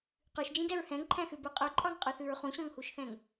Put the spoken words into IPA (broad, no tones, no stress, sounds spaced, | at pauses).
q ʉ ʃ d͡ʒ ĩ d ɛ ɹ h ɛ̃ ŋ ǃʰ æ̃ x ʉ b ʉ qʼ ø ǃʼ ɑ ŋ qʼ ʉ θ ʉ ɹ χ ũ ɕ ɔ̃ ŋ h u ʃ θ ɛ̃ ŋ